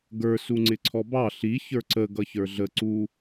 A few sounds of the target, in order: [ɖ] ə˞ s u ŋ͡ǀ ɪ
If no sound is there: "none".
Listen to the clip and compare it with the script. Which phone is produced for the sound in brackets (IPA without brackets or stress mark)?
ɡ